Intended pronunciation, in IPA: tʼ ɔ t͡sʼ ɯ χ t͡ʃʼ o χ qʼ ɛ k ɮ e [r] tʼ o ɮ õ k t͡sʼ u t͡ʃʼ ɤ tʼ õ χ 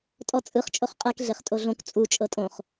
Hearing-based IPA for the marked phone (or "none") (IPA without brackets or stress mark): χ